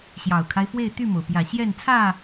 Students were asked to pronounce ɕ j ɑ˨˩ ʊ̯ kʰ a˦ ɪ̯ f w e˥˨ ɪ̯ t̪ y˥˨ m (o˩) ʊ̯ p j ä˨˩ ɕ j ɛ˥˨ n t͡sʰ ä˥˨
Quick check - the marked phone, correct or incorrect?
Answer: correct